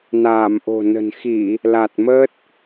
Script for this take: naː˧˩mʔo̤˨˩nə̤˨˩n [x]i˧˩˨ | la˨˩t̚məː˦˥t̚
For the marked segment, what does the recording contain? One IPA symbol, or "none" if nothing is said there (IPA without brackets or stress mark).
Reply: x